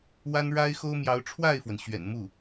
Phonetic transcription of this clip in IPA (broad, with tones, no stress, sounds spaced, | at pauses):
w a˥ n ɻ a˥ ɪ̯ x o˥ ʊ̯ m j ɑ˧˥ ʊ̯ ʈ͡ʂʰ w a˥˩ ɪ̯ f w ə˩ n ɕ ɥ ɛ̰˨˩ n m u˥˩